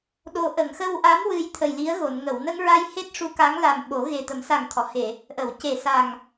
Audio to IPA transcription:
ɗ o˧ ʔ ə˨˩˨ ŋ x ə˧ w ʔ a˧˥ m w ɨ˧ j t̪ʰ ə˨˩ j l i˧˥ ə̯ ɣ o˨˩˨ n ŋ ə˨˩˨ w n ə˧ ŋ ɹ a˧ j h e˦˥ t̚ ʂ u˧ k a˧˥ ŋ l a˨˩ m ɓ o˨˩˦ ɣ e˨˩ t̪ ə˨˩˦ m s a˨˩ ŋ t̪ʰ ɔ˨˩˨ h e˨˩˨ | ʔ ə˨˩˨ w c e˨˩ s a˨˩ ŋ

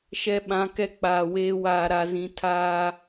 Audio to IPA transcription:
ʃ ɛ˨ ɓ ã˨˦ k ɛ˦ k͡p aː˨ w eː˦ w aː˨ ɾ a˨ z ĩ˨ tʰ aː˦

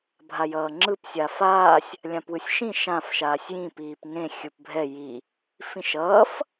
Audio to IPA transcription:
bʱ a j ʌː ŋ͡ǁ ɯ p sʲ a f aː sʲ | lʲ ã p w ɯ sʲ ʃ ĩ ʃ ã f ʃ aː sʲ j ĩ p iː p ŋ ẽ xʲ ɯ p bʱ ɛ j i | f ĩ ʃ ʌː f

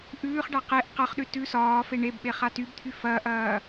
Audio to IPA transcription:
ʔ ʉː χ ɖ a q e ʔ q ɐ χ ɗ ʉ t ʉ s ɒː f e ɳ e b ɓ e χ a t y b t̪ʰ y f ɐː ʔ ɐː

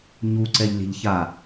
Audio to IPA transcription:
ɲ u ǀ ɛ ʎ lʲ ɛ̤ ʎ ç a

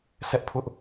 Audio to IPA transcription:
sʰ ɛ˦ ʔ pʰ ʊ˦ ʔ

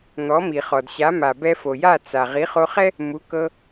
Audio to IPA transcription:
n̪ ɔ˩˥ m i˩ χ ɔ˩ d ɕ a˩˥ m a˩ b ɛ˧ f o˩ j a˥˩ t͡s a˩ ʁ i˩˥ χ o˧ χ ɛ˥ | m u˩˥ k ɤ˧

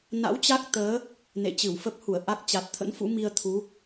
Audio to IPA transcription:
n a̰˧˥ w t͡ɕ a˦˥ k̚ t̪ əː˨˦ | n ḛ˧˨ t͡ɕ ɨ˧˩ w f ə˦˥ p̚ h u˧˩ ə̯ ʔ a˦˥ k̚ t͡ɕ a˨˩ t̚ t̪ʰ ə̰˧˥ n f ṵ˧˥ m i˧ ə̯ t̪ʰ u˨˦

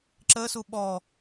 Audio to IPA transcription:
ǁ ə s u ɓ ɔ

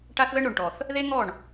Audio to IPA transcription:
ʈ a˦ θ ð ə˦ ɳ ɾ o˨ ɳ ʈ ɔ˨ θ | ð e˦ ŋ ɔ˦˨ ɳ

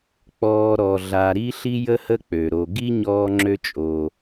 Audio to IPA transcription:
k͡p ɔː˨ ɾ ɔ˩ ɮ a˨ ɾ i˦ ɬ i˦ j ə˦ h ə˦ k͡p ø˩ ɾ o˨ ɡ i˥ ɲ ɔː˦ ŋ͡ǁ ø˦ t͡ʃʼ o˨

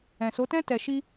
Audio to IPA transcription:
ɛ̃˨ s o˨˦ t ɛ̃˦ t ɛ˧ ʃ i˦

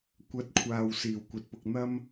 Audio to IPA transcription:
kʷ ɐ˧ t̚ kʷʰ aː˨ w s iː˨˩ w kʷ ɐ˨˥ t̚ p ʊ˧ k̚ n̪ ɐ˥ m

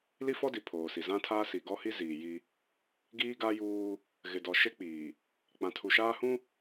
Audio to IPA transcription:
l i˦ f ɔ˦ d i˨ pʰ oː˨ s i˨ z ã˦ tʰ aː˦ s i˨ ɡ ɔ˦ h i˦ z iː˨ j i˦ | ɡ iː˦ ɡ a˦ j uː˦ | ɣ ɪ˨ d ɔ˨ ʃ e˦ k͡p iː˨ | k͡p ã˨ tʰ u˨ ʃ aː˦ h ũ˦

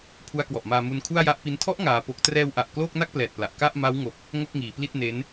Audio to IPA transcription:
pʰ u˦˥ a̯ k w ɔ˨˩ ʔ m aː˧ m u˧ n kʰ u˥˩ a̯ j a˦˥ ʔ p i˦˥ n tʰ ɔ˦˥ ʔ ŋ aː˧ p o˦˥ k̚ t r ɛː˧ w ʔ a˨˩ ʔ k l oː˥˩ k̚ n a˥˩ k̚ p l ɛː˨˩ t̚ p l a˨˩ ʔ k a˥˩ ʔ m a˦˥ w ŋ o˨˩ k̚ | ŋ o˥˩ k̚ ŋ iː˩˦ p l i˥˩ t̚ n e˦˥ n

